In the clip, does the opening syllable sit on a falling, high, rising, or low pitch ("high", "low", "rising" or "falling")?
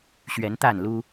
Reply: rising